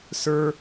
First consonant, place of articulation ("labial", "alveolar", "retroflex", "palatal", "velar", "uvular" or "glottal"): alveolar